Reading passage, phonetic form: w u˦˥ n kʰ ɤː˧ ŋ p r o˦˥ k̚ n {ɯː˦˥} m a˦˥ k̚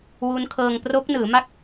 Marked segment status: incorrect: ɯː˩˦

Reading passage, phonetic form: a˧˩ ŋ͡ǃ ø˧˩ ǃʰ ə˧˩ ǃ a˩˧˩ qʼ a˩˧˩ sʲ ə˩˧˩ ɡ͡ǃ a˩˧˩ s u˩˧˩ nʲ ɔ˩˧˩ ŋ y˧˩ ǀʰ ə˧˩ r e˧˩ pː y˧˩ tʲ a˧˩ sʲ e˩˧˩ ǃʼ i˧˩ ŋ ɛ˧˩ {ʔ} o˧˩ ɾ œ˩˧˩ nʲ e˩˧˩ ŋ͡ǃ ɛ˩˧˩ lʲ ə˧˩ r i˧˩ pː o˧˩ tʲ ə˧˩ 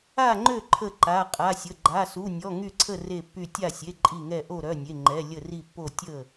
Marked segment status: correct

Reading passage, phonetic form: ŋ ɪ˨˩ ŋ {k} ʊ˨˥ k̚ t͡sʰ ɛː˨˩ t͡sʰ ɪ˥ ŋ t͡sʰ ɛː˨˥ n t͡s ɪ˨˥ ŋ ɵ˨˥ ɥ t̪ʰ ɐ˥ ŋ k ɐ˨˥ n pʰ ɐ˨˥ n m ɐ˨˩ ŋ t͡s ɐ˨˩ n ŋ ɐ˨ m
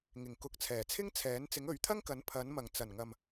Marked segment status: correct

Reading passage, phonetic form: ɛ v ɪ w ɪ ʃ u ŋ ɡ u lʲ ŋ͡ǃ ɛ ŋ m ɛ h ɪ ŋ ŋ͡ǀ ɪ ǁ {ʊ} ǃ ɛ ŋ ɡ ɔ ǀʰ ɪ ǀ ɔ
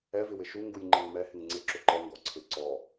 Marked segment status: correct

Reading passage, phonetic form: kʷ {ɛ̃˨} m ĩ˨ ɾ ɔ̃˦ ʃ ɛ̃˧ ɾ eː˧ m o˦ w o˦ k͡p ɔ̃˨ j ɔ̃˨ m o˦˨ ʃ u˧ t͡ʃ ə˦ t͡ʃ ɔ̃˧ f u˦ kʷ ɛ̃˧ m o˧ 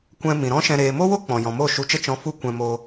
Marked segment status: incorrect: ɛ̃˧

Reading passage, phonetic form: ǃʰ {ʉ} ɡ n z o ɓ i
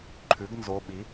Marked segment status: correct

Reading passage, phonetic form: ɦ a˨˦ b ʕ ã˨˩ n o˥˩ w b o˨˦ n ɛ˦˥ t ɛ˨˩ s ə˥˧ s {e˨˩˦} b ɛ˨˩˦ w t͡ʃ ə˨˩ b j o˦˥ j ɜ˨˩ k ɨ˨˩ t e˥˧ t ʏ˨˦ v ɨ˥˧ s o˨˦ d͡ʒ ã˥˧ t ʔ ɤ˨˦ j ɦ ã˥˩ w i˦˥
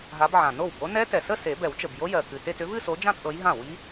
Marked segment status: correct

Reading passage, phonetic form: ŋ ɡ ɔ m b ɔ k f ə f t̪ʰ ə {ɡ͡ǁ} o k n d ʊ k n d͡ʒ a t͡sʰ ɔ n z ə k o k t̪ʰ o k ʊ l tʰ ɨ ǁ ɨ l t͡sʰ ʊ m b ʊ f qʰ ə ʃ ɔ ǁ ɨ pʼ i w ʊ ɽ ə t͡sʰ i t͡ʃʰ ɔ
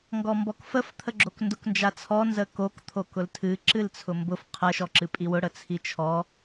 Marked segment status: correct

